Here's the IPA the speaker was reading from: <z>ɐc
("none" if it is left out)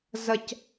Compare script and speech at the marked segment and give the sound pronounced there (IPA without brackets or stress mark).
z